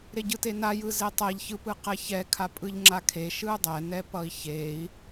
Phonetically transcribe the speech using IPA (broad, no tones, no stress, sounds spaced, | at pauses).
ɾ e ɟ ɯ t e n a j ɯ z e tˤ ɛ ʎ ç ɯ p ɯ q ɛ ç ɛ kʰ a pʼ ɯ ʎ ŋ͡ǁ a kʰ e ʃ ɯ dˤ ɛ n ɛ p ʌ i̯ ç e i̯